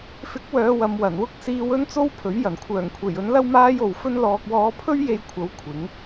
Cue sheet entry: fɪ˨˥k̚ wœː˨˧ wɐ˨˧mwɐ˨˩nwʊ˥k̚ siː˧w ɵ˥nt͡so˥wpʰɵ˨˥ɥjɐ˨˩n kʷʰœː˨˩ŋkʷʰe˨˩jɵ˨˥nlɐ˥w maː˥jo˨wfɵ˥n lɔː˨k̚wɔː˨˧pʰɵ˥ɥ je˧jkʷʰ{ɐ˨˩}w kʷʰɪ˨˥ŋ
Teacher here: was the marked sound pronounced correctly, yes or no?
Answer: no